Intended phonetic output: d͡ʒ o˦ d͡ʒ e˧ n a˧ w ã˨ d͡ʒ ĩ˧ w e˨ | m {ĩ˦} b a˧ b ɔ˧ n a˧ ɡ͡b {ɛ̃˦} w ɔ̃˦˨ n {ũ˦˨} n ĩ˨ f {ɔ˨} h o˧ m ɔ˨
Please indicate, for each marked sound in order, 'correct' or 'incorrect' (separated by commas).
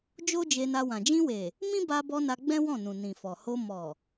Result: correct, correct, incorrect, correct